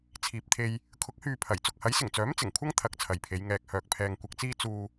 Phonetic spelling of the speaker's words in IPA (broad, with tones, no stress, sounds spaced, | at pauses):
t͡sʰ iː˨ p̚ t̪ʰ e˧ j | kʰ ʊ˨˥ k̚ h yː˨ pʰ ɐ˨˩ j t͡s ʊ˨ k̚ h ɐ˨˥ j s ɪ˨˩ ŋ t͡s œː˨˥ m t͡s ɪ˨˩ ŋ kʷʰ ɐ˥ ŋ t̪ʰ ɐ˨˥ k̚ t͡sʰ ɐ˨ j pʰ e˨˧ j ŋ ɛː˧ k̚ h œː˧ k̚ pʰ ɛː˧ ŋ kʷ ɐ˨ k̚ t͡s iː˧ t͡s uː˧